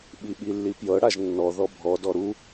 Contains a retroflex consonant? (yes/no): yes